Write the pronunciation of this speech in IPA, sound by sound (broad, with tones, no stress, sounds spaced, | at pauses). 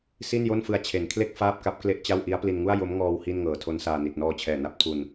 s i˥˩ n j o˥˩ n f ɯ˧ a̯ t͡ɕʰ e˩˦ n kʰ l e˥˩ k̚ f aː˥˩ p̚ k a˦˥ p̚ k l e˥˩ ʔ t͡ɕ a˥˩ w ʔ i˦˥ a̯ p l i˧ n ŋ u˥˩ a̯ j o˦˥ m ŋ ɔː˧ w h i˥˩ n ŋ ɤː˨˩ tʰ o˦˥ n s aː˧ n i˨˩ t̚ n ɔː˧ t͡ɕʰ ɛː˨˩ n a˦˥ p̚ tʰ u˧ n